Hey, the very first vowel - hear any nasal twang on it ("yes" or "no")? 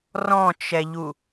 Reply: yes